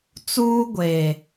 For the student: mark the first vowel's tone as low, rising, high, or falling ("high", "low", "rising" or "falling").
high